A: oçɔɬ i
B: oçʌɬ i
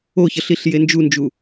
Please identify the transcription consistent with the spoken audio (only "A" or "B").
B